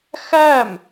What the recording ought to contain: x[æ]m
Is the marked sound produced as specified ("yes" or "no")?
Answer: yes